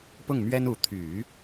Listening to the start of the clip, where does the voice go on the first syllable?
falling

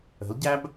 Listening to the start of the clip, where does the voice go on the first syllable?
rising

